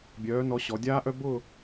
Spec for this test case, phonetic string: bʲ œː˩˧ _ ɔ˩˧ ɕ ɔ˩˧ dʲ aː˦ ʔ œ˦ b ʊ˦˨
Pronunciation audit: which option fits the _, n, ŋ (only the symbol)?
n